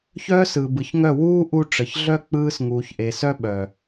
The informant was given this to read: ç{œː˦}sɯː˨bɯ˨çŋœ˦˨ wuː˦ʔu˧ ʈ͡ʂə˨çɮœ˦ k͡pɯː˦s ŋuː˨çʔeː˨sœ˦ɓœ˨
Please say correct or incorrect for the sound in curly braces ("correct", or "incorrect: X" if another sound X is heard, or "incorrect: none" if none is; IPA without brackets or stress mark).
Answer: correct